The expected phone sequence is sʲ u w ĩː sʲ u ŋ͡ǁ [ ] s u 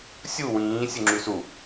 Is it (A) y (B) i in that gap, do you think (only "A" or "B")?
A